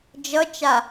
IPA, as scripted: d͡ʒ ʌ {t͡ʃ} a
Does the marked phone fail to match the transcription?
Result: no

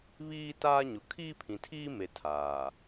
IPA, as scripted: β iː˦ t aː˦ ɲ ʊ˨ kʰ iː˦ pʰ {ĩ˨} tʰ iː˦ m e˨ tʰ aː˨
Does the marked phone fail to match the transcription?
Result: no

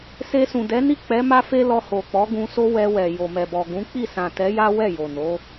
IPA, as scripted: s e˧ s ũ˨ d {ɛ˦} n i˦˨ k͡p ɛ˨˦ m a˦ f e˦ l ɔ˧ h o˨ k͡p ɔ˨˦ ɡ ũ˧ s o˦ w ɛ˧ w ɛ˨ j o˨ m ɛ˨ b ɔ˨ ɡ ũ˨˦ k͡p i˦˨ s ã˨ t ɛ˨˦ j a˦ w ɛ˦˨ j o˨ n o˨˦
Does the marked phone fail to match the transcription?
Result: yes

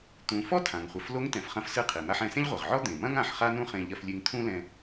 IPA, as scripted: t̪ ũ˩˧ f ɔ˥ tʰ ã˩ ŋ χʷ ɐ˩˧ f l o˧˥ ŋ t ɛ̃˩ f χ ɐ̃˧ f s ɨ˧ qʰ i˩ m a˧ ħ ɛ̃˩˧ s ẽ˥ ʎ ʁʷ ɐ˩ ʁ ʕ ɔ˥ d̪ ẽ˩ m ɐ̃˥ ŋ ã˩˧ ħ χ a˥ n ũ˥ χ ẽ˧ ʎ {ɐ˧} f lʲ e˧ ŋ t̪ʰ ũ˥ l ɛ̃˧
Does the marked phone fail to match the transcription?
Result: no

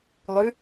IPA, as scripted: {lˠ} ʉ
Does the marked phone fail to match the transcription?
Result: no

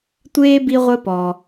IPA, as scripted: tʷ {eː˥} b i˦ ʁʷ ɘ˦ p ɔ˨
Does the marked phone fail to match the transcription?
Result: no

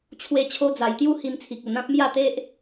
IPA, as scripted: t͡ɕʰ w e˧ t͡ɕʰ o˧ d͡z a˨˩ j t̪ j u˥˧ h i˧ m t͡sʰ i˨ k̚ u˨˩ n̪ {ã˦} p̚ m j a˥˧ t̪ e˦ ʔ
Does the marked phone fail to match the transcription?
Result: no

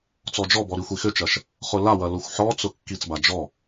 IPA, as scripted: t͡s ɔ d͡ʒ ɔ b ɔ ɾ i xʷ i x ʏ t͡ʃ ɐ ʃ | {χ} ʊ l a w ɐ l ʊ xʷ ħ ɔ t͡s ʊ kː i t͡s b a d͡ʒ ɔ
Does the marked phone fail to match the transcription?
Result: no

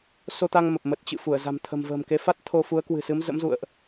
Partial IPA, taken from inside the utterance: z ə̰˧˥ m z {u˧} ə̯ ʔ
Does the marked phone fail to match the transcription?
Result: yes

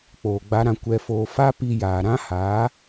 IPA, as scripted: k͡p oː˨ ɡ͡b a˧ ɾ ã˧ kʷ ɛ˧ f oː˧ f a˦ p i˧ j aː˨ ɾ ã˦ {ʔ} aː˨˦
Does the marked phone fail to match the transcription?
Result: yes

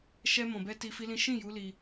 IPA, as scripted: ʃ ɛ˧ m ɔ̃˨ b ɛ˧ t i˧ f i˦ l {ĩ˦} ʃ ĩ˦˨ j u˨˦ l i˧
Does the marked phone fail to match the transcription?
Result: no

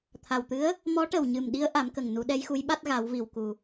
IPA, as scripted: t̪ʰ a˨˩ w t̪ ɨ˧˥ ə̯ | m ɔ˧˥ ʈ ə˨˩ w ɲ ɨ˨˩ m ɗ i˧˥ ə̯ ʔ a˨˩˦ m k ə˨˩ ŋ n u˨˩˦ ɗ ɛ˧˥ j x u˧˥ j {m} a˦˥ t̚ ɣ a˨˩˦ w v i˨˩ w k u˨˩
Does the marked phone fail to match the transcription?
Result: yes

